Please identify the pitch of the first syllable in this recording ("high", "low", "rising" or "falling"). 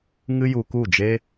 high